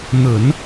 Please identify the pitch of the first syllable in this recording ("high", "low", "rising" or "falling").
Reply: low